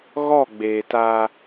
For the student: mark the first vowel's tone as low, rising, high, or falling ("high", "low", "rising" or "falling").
falling